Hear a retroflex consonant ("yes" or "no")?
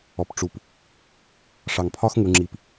yes